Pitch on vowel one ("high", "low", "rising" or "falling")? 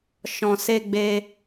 low